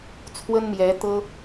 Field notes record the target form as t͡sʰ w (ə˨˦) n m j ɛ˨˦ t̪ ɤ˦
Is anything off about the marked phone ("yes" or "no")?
yes